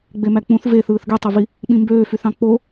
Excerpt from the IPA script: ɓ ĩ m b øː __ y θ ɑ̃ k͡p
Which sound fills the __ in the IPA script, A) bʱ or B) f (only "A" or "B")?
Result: B